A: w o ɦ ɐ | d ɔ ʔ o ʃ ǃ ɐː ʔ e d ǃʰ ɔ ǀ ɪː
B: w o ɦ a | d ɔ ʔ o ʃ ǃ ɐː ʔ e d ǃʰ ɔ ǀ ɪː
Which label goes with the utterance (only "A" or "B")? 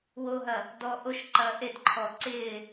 A